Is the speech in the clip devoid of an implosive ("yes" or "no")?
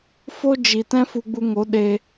no